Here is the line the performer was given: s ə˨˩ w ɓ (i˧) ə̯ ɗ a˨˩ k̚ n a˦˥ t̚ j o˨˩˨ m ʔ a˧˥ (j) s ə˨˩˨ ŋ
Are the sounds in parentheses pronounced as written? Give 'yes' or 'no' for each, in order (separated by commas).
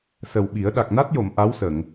no, no